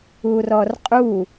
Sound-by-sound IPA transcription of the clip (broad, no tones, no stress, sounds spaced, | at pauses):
u r ɔ r qʼ u